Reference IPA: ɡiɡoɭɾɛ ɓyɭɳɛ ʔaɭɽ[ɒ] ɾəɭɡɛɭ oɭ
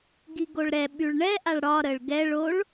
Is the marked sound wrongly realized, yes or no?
no